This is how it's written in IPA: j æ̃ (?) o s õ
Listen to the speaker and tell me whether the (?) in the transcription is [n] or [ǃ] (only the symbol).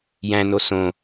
n